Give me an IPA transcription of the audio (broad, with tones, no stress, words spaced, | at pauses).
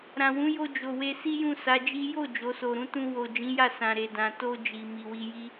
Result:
ɾã˨wũ˨˦jo˧ d͡ʒo˨we˧ si˦jũ˦˨ sa˨˦d͡ʒi˦ jo˦˨ d͡ʒo˨˦so˧ɾũ˦ tũ˧wo˨ d͡ʒĩ˨˦ja˦˨ sã˨ɾe˨dã˨ to˧ d͡ʒi˨ mi˨wi˧ji˦